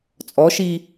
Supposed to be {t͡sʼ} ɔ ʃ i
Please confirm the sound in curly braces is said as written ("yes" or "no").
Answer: yes